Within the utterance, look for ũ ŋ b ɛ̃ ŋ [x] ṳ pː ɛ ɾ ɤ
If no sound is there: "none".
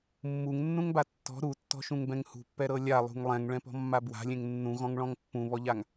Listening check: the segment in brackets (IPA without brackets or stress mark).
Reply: h